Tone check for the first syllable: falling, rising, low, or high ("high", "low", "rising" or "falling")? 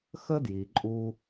high